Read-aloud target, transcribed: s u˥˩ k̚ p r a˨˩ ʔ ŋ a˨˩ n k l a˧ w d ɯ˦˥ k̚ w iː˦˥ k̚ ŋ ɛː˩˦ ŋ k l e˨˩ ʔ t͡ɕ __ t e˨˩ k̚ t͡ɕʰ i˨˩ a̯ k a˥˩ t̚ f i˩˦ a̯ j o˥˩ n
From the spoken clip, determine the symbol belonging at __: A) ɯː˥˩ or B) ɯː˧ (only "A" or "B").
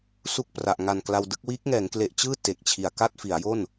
A